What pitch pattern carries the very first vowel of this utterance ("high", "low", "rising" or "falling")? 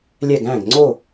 falling